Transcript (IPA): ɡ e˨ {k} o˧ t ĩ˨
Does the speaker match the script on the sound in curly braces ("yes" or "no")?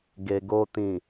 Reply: no